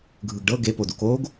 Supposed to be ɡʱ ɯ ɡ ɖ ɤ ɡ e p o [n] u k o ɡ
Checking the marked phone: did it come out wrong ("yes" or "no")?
yes